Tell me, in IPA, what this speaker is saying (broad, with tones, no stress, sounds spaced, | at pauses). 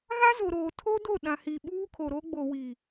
ɣ a˦ z o˨ ɾ oː˨ tʰ o˦ d o˦˨ ɗ ã˨ h i˨ ɓ uː˦ kʰ o˨ ɾ o˦ ɡ͡b o˨ w i˨